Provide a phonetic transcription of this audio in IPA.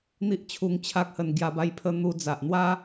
n̪i˦ʔt͡ɕʰu˧ŋt͡ɕʰa˦k̚hə˧n ɡja˧ba˦jpʰə˦ n̪u˦ d͡za˨ʔn̪wa˦

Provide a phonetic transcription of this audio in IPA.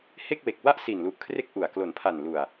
he˥˩k̚we˨˩k̚ wa˥˩ʔsi˨˩nlu˨˩ʔkʰre˦˥k̚ ʔu˨˩a̯ klo˩˦npʰa˨˩nlu˨˩a̯

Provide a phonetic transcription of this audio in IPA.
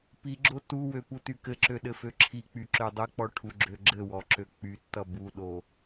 piɡ͡ǁo tuwø putykɘǁø ɗɘføǁʰik͡py ǁødˤɘk͡pɔ ʈʰuɡ͡ǁøɡ͡ǁɘwɔ ǁøk͡pytːʌ buɗo

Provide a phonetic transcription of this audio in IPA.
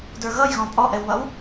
də˞ɣʌj ɣɔ̃pʼɔʔɛwβʌw

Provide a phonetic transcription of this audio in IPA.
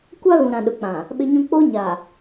kʷa˦ɣũ˨ɾã˨ ɗʊ˨k͡pã˨ | ɓɪ˦ɲũ˦ k͡poː˦ɲaː˨

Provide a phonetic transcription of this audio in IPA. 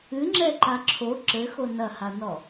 ɨŋ͡ǁɛǃa ǁʰo ǁɘxo nɐhanɔ

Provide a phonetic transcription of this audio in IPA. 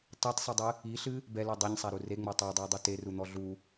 tˤitsˤɨdˤɨ | iɬɨ | bɛlo dˤɛɲsˤaɾu reŋ͡mo tˤadˤiʊ̯dˤu terun̪ɔ ɮu

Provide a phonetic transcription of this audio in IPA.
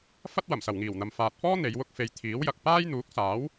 fɐ˥t̚ wɐ˨˩msɐ˨˩wŋiː˨˩wn̪ɐ˨m faː˨t̚fɔː˥ n̪e˨˧jwʊ˥k̚ fe˨j t̪ʰiː˨˥wjɐ˨k̚ paː˥jn̪uː˨˥k̚saː˨˥w

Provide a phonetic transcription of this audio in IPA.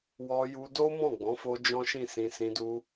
wɔ˧ju˧do˦ mɔ̃˦˨ɡ͡bɔ̃˨˦fo˧ d͡ʒɔ̃˦ʃĩ˦˨sĩ˧ sĩ˧du˧

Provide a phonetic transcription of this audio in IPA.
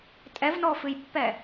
tʼɛvnɔfɨjpːɛ

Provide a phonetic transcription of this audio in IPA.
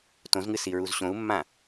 tõzŋɨ siɹuzɕõu̯mːã

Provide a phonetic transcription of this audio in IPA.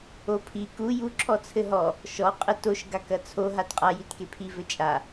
opʰi ku ju ǁʰɔt͡sʰɘɦɔ | ʃɔ qʼɘtoʃ ɡakɐt͡sʰo ɦatqʼa jitkepʰi vɘt͡ʃʼa

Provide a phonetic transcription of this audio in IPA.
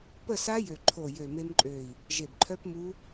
pə˥˨sa˦˥ jø˧˩ǃʰo˧˩ jø˧˩me˦˥mǃʼø˧˩i̯ | ʒe˧˩bǃʰœ˦˥pmu˦˥

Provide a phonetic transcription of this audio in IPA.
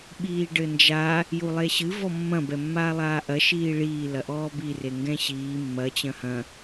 ɓiːɖɘnd͡ʒa | julˠeɕɨ vɔmːɐ̃ bɛmːaːlˠaːʔɐ ʃiːɭiː lɐʔɔːbi reŋɡɛ̃ɕiː mːɐ t͡ɕɐ̃hɐ̃

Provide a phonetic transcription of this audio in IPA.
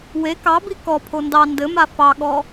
we kɑbi kɔpʰo ndɑ ndɘma fɑɠɔ

